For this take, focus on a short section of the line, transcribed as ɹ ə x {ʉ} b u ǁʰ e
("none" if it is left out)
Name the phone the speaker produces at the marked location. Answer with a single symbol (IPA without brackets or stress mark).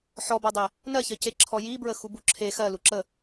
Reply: u